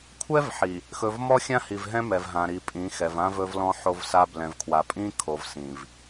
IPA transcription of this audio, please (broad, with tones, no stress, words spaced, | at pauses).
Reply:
kʷʰɛ˦vħi˨ | xɵ˨vmɔ˦xʲã˦hi˨v ɦɛ̃˦mɛ˨vɦã˨ɾi˨ pʼĩ˨˦xɛ˨vã˦ vɵ˦vlɔ̃˦ ħo˦vsa˦ blɛ̃˨vkʰwa˨pʼĩ˦ kʰo˨vsĩ˨v